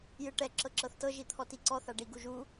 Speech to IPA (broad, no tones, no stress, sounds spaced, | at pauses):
j ɯ ʈ ɛ ǁ ɤ ǁ ɤ θ t ɤ ʒ i t̪ʰ ɔ t i ǀ ɔ θ a ɖ i ɡ u ʒ u